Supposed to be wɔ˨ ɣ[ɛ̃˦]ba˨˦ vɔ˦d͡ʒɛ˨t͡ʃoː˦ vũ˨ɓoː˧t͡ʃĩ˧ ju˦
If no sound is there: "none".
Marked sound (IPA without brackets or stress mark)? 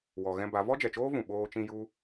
ɛ̃˧